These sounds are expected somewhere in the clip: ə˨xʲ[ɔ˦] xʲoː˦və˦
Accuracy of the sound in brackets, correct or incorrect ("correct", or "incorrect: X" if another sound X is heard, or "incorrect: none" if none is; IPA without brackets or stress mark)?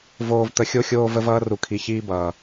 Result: incorrect: o˦